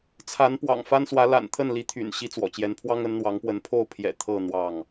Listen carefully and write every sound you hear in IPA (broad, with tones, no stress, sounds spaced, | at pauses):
t͡sʰ a˨˦ n p w ɑ̰˨˩ ŋ f a˦ n s w ä˨˦ l a̰˨˩ n t̪ʰ ə˥˨ n l i˨˦ t̪ʰ y̰˨˩ n ɕ i˦ t͡s w ɔ̰˨˩ t͡ɕ j ɛ˨˦ n pʰ w ɑ˦ ŋ ə˨˦ n n̪ w ɑ˨˦ ŋ p w ə˨˦ n pʰ o˥˨ ʊ̯ pʰ j ɛ̰˨˩ t̪ʰ ɤ˥˨ n̪ w ɑ˥˨ ŋ